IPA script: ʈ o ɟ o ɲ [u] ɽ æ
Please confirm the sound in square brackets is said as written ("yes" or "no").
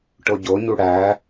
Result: yes